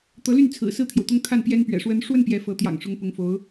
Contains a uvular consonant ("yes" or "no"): no